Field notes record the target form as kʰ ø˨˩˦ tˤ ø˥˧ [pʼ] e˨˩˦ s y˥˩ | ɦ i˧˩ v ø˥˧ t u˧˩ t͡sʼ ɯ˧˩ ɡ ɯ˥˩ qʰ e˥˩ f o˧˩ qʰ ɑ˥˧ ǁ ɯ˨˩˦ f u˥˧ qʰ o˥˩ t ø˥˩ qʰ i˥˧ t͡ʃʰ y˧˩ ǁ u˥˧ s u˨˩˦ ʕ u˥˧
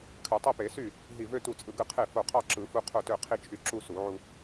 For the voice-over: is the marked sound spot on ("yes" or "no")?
no